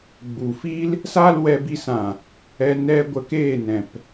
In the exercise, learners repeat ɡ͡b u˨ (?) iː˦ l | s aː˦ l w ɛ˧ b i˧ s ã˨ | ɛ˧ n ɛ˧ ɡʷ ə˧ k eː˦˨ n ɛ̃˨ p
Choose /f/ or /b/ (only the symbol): f